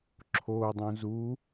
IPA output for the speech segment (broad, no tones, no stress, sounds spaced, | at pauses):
ǁʰ o dˤ ũ z u